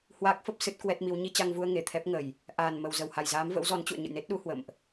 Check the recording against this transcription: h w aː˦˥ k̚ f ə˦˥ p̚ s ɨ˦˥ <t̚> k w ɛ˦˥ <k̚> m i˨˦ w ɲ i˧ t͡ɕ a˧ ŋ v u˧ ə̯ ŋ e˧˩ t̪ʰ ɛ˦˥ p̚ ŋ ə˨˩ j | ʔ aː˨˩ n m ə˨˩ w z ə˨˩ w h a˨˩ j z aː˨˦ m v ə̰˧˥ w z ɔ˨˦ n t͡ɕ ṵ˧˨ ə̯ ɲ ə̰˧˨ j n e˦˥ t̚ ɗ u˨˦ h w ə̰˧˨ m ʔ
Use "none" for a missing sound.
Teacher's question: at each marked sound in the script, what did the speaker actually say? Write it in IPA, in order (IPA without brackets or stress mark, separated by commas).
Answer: t̚, t̚